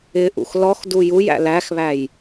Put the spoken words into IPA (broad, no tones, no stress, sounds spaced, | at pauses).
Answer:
ɪ ʔ ṵ x l ɔ x d u j u j æ̰ l æ x β æ j